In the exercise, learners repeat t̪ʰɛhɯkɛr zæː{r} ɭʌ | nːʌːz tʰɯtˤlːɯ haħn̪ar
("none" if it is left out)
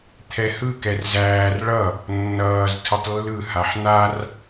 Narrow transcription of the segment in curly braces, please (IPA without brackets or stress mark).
r